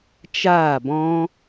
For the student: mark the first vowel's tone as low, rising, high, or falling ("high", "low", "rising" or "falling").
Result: falling